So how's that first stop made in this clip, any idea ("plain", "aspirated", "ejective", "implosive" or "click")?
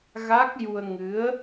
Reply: plain